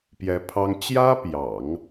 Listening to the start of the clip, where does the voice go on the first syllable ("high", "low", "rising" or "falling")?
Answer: rising